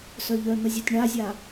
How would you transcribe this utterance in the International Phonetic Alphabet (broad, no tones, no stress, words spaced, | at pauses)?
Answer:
sœʎœn̪əzʲœtʲ ɳazʲa